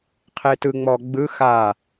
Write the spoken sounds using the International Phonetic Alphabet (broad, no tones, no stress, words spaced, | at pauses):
qʰetɯ ŋ͡mɔɡ͡bɯ xa